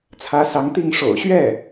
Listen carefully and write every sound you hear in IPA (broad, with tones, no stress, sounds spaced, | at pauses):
t͡sʰ ä˧˥ s ɑ˧˥ ŋ t̪ i˥˩ ŋ ʂ o̰˨˩ ʊ̯ ɕ ɥ ɛ˥˩